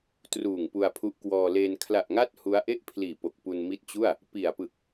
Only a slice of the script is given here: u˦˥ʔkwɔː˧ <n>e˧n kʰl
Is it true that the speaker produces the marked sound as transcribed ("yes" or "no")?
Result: no